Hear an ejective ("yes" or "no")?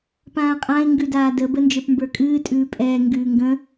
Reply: yes